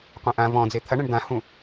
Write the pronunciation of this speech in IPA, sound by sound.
qʷẽʔã vɔ̃d͡ze t̪ʰɐɳɛ̃ɳ d̪ãhũ

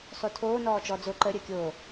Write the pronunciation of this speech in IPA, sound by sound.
sˤotʰoː nɔːt͡ʃɔd͡zo ǃə ɾʲəːkʲoː

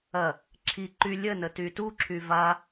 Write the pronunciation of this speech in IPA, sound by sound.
ɐ | ǁʰi ǃy lʲənə tytuǁʰy va

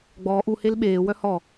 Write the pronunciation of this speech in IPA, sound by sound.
ɡ͡bɔːʔ u helɓeː wœhɔ

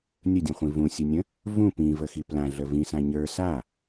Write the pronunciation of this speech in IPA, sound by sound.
nʲədʲũχʷĩ vũsʲənʲə̃ | vũ pĩvəxi plãɮə vĩsã ɲə˞ sa

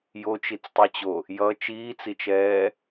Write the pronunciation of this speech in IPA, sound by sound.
jot͡ʃit͡stˤɯt͡ɕo | jʌ t͡ʃiːt͡sit͡ʃɛː

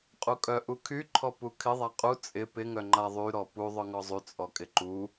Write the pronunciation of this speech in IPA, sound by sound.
qʼukʼœ ʔukʰy ǃʰɔpukʰɪ ðˤaqʼu t͡sʼɪ pɪ ŋœŋ͡ǃa ðˤy ɾɔpu ðˤœŋɔzˤy t͡sʼɔkʼɪǃu

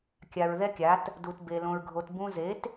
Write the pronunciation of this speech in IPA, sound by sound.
kʲa˨ɹ ðɛ˦kʲa˨˦t | du˨t be˧ lõ˧ɹɡʱo˧t bũ˧ze˨˦t

